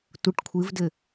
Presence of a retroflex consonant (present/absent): present